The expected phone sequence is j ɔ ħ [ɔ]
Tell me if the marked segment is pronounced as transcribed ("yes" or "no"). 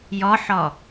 yes